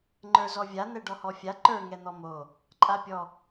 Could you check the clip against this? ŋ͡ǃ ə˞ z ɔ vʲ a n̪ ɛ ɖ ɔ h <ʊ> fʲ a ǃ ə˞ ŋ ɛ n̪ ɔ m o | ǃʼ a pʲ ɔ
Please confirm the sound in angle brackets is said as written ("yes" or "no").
no